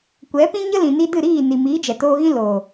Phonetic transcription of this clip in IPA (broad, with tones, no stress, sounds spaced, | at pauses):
kʷ ɛ˨˦ p ĩ˦ ɲ ə˦ l ĩ˨ n i˧ d ɨ˦˨ ɾ iː˦˨ n i˨ m iː˨˦ d͡ʒ ɛ˨ t oː˧ ɣ ĩ˦ l oː˨